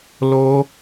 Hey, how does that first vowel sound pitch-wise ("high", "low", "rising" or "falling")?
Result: high